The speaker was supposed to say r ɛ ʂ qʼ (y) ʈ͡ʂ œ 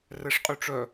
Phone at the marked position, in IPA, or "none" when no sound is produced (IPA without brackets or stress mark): y